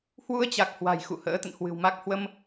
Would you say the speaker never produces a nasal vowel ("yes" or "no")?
yes